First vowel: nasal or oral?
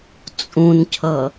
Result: nasal